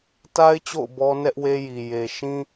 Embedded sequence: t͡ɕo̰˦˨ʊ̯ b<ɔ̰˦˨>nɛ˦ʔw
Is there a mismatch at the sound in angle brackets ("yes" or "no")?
yes